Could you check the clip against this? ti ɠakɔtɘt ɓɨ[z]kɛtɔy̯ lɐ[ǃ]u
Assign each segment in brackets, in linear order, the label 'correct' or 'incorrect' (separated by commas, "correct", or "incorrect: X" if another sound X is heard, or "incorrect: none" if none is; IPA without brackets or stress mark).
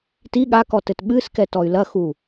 incorrect: s, incorrect: x